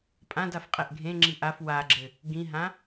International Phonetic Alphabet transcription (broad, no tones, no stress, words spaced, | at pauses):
pʼãd afqʼɛʔɡʱẽŋ͡ǁi ʔaf waɡ͡ǁɘ | ɡĩɦã